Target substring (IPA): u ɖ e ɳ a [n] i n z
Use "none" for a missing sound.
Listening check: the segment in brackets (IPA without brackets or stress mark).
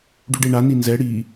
n